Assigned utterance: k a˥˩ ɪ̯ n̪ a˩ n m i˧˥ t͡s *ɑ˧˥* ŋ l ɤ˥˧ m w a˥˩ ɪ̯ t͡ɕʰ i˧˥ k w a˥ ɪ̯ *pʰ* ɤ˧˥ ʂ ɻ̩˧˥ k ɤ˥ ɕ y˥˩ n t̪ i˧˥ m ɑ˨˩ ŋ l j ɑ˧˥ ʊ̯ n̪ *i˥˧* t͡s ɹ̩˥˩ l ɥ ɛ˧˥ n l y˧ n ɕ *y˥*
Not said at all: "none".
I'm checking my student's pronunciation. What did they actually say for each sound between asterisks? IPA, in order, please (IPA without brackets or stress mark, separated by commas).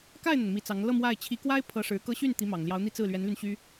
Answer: ɑ˧˥, pʰ, i˥˧, y˥